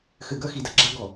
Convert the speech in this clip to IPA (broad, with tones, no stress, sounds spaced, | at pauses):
x ɘ˨ ɡ ɐ˦ x i˨ d ɐ˨ ɡ͡ǁ a˦ ɡ ɔ˨